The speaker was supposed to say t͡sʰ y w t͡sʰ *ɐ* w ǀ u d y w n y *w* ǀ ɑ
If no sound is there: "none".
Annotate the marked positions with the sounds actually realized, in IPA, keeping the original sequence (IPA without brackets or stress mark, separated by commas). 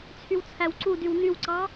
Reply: æ, w